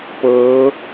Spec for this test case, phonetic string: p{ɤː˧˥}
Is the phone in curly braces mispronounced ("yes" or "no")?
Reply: no